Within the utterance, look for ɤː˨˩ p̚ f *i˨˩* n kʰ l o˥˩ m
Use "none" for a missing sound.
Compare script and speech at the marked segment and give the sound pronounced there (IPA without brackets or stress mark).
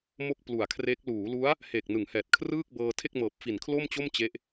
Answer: i˨˩